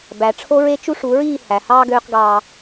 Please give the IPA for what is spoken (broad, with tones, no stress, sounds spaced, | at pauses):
b æ˨ ʈ͡ʂʰ o˦ ɹ e˦ t͡ʃ u˦ ʂ u˨˦ ɹ iː˦˨ h æ˨ h ɑː˦ ɡ øː˦ q ɡ ɑː˦